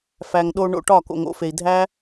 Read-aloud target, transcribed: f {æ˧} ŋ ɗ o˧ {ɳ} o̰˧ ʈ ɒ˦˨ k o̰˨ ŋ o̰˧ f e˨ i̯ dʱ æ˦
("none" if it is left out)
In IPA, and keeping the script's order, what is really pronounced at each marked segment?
æ˨, ɳ

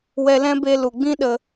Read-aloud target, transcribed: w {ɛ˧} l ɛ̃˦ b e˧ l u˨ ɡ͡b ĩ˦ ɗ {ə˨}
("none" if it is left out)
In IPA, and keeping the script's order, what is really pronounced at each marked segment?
ɛ˧, ə˧

